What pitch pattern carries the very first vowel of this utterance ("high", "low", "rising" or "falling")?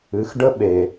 rising